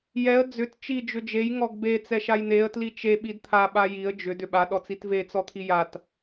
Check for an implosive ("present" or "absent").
present